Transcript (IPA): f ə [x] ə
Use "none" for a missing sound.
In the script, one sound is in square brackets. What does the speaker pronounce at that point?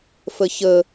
ç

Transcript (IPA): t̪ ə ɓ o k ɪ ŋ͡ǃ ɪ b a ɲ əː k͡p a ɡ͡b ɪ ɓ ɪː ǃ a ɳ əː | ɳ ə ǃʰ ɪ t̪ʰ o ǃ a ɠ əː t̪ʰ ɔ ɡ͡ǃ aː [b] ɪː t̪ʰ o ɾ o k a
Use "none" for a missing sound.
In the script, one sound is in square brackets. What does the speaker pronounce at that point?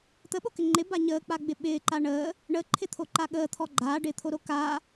ɖ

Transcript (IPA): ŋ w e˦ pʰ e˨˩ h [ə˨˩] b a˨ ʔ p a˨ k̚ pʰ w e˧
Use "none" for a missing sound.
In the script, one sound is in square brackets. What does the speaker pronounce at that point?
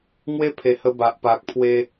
ə˧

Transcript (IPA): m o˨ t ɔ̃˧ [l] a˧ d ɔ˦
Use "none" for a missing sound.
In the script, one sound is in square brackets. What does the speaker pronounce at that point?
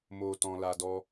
l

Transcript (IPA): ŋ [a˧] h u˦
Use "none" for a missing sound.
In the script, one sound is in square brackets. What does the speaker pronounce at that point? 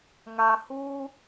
a˧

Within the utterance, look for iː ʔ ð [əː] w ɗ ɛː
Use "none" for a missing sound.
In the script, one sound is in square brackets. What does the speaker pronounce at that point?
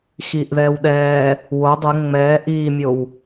ɛː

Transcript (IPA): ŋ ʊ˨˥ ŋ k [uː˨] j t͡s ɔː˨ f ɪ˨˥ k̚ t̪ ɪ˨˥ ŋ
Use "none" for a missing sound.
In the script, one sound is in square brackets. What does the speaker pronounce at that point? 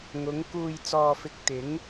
uː˨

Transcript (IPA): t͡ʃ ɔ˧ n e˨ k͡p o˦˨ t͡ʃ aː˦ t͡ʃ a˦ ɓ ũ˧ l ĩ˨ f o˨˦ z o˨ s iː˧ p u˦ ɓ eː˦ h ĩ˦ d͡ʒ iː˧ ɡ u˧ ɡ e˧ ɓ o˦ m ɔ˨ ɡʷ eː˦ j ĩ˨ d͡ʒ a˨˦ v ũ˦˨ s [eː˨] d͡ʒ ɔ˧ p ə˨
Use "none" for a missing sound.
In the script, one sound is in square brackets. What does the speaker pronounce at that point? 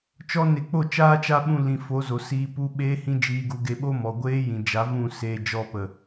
eː˧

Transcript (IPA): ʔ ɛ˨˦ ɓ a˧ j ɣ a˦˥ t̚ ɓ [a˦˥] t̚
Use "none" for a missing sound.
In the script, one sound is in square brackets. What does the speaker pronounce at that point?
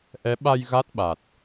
a˨˩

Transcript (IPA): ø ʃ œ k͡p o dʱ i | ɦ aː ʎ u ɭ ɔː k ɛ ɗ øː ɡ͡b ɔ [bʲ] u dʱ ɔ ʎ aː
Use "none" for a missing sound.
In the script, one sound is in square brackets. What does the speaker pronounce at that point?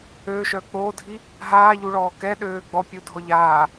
pʲ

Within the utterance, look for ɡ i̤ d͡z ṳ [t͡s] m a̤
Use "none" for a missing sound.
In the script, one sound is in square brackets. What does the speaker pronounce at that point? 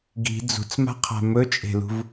t͡s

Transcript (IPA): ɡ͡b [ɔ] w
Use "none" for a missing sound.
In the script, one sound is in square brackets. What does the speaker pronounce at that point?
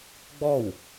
ɔ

